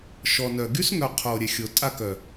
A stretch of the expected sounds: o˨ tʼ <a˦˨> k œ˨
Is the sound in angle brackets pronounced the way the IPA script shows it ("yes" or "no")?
yes